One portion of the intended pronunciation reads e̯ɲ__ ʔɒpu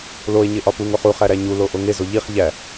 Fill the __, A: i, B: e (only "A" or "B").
B